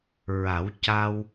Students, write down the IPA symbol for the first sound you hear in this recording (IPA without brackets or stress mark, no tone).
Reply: ɹ